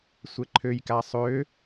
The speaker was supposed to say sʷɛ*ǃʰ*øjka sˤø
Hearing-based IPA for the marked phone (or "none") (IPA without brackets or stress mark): ǃʰ